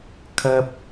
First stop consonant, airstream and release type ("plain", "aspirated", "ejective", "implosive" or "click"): aspirated